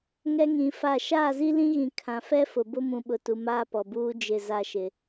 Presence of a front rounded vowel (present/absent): absent